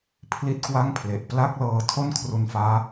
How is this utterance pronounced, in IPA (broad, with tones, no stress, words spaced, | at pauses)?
pʰli˥˩t̚kwa˥˩ŋpʰle˨˩ʔ pla˥˩k̚lɤː˧ tʰo˥˩nkʰru˧nfaː˦˥